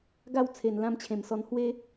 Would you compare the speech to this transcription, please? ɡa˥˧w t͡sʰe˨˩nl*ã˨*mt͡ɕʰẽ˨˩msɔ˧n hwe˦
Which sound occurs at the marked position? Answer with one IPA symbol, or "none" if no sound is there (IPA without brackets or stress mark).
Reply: ã˦